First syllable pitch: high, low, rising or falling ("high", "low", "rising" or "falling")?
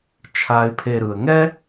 low